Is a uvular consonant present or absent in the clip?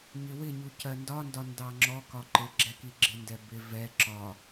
absent